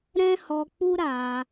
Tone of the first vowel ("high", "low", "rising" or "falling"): high